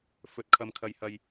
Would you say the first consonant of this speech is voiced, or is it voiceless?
voiceless